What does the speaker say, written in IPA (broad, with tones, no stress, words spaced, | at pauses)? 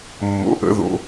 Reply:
mːo̰˨˥ʔə̰˨˥ ðo̰˨˥